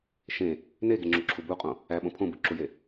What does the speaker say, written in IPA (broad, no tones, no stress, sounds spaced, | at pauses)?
ʃ ẽ | n e ɡ e ŋ͡ǁ o ǁʰ u b u qʼ õ | æ ɓ õ pʰ õ b ɯ ǁ u j e